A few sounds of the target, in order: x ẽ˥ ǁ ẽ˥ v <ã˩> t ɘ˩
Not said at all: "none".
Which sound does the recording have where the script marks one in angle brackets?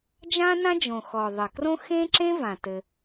ã˩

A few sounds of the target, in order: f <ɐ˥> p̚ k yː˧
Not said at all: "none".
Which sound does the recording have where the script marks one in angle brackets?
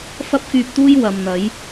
ɐ˥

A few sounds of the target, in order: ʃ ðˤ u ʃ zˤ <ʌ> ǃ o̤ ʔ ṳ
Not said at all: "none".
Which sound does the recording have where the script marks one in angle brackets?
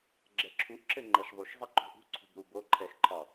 ʌ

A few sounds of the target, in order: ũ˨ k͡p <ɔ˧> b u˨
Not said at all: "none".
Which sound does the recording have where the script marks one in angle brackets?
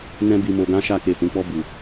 ɔ˧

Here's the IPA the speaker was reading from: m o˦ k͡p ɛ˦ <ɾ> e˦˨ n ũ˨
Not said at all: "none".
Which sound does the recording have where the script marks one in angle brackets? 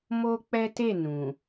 t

